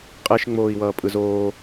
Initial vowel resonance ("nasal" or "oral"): oral